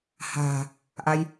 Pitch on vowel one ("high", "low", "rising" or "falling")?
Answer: low